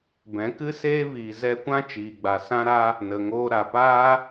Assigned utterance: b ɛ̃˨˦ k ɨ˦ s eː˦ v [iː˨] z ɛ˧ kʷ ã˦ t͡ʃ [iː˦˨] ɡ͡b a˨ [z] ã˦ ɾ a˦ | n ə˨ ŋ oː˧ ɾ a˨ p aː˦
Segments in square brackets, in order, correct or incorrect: correct, incorrect: iː˨, incorrect: s

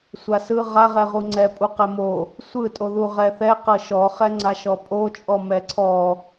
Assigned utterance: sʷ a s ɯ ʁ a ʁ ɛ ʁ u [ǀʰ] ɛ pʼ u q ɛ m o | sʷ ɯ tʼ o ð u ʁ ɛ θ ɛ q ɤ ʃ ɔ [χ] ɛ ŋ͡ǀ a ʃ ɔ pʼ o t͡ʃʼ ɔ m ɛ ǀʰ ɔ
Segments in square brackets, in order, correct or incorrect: incorrect: ŋ͡ǀ, correct

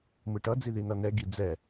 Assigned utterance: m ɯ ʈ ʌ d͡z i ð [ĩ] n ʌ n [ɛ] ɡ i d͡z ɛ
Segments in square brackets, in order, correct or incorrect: incorrect: i, correct

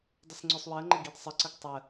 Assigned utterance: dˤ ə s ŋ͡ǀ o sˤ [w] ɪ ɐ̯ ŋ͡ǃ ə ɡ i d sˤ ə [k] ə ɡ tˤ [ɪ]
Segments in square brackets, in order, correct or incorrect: correct, incorrect: ǀ, incorrect: ə

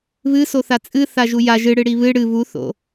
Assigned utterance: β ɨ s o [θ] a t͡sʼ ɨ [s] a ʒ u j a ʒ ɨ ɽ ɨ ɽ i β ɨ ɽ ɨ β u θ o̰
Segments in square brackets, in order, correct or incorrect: correct, incorrect: θ

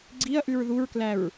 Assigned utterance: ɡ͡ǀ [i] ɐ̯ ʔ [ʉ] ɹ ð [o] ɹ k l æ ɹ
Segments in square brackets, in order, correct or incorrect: correct, correct, incorrect: u

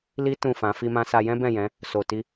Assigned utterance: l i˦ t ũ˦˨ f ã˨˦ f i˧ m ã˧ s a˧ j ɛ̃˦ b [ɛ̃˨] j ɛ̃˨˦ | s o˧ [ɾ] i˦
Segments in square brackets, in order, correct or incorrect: incorrect: ɛ̃˦˨, incorrect: t

